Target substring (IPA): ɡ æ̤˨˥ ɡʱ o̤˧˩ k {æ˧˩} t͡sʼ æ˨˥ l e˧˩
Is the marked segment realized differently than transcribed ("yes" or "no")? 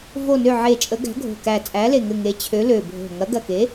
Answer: no